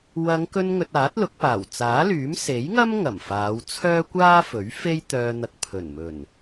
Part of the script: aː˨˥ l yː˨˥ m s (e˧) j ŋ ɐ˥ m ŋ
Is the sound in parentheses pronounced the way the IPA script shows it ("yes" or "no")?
no